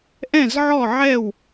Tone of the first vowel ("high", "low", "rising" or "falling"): falling